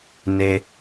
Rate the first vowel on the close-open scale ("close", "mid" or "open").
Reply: mid